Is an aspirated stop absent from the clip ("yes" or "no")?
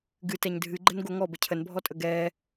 no